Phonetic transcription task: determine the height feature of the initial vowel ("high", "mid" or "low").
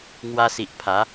low